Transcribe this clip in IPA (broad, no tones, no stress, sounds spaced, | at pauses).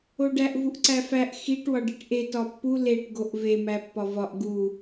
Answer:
o ɖ æ ʔ v u ʔ ǀ æ f æ ʔ x i ʈ w ɒ ɖ i ʈ ʔ e t ɒ pː u l e ʈ ɡ o ʔ v e m æ pː ɒ v ɒ ʔ ɡ u